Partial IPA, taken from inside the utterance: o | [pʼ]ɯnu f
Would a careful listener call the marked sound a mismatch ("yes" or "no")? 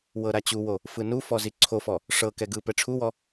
yes